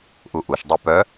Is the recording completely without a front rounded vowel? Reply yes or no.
no